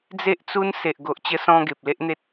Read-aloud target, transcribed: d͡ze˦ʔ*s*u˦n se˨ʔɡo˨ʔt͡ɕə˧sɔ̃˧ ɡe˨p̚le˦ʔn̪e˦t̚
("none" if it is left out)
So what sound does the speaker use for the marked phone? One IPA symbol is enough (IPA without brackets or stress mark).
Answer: t͡s